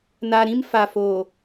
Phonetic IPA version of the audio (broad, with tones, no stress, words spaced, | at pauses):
na˨ɾĩ˦mfa˨fo˨